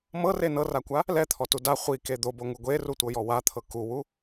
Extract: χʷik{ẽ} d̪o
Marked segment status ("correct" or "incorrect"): incorrect